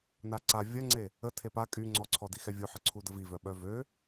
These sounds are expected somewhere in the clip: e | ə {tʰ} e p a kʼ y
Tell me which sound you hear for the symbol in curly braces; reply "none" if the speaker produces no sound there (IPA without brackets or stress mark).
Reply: tʰ